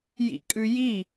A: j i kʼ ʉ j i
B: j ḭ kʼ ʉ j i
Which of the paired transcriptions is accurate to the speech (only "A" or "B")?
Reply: B